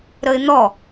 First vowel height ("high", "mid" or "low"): mid